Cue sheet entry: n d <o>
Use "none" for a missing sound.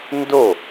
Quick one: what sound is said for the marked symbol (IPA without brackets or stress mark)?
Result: o